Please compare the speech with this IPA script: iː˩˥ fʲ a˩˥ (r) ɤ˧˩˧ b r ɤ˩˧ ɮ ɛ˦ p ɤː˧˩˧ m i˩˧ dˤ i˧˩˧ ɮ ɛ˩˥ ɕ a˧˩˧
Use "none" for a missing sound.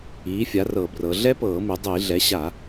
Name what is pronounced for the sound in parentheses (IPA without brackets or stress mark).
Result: r